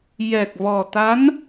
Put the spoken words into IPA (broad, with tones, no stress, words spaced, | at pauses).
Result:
jɛ˨˩k̚vɔ˨˩ t̪a˧˥n